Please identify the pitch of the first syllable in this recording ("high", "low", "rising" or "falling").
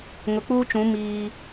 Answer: low